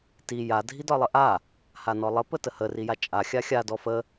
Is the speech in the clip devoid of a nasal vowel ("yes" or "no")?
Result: yes